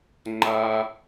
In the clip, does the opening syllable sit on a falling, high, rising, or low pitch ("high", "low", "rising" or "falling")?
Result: high